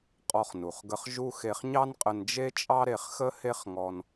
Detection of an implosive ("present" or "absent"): absent